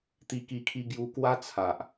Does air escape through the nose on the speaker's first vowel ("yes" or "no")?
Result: no